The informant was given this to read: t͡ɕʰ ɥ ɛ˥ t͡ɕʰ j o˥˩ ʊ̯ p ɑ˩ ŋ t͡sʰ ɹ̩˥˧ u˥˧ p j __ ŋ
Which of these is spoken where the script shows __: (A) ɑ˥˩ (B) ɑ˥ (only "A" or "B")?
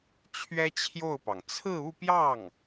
A